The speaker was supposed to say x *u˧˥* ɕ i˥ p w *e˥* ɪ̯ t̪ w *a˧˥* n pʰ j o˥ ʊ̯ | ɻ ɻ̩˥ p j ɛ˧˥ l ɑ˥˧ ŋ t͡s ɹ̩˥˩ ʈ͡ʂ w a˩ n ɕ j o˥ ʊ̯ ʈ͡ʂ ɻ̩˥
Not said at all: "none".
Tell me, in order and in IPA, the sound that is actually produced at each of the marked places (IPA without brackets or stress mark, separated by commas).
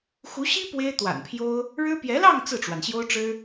u˧˥, e˥, a̰˨˩